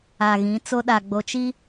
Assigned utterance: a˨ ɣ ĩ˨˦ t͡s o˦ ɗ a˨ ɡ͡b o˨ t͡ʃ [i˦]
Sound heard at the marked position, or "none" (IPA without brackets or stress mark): i˦